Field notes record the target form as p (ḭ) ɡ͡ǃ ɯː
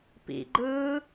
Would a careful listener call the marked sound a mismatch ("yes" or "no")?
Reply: no